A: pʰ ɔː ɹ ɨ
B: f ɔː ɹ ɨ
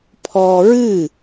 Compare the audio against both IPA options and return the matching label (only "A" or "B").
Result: A